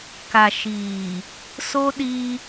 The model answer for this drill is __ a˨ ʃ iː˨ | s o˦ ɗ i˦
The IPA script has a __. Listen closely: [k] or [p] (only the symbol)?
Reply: k